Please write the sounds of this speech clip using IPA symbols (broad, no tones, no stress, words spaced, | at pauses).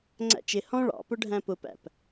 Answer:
ŋ͡ǀæ̰t͡ʃɪ hɔ̃ ɭɑ̰pʊ ɖʱæ̃pʊpæ̰p